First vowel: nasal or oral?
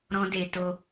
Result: nasal